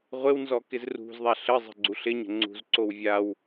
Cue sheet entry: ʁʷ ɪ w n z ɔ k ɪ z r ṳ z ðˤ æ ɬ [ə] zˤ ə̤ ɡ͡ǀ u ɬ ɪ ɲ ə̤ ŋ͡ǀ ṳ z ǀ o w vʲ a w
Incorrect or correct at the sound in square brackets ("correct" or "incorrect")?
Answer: correct